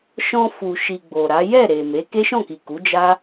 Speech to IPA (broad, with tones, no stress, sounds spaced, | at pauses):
ʃ ɔ̃˧ f u˨ ʃ i˨ ɡ͡b o˨ ɾ a˨˦ j ɛ˦˨ ɾ e˨ m e˨˦ k e˦ ʃ ɔ̃˦˨ k i˨ k u˨˦ d͡ʒ a˦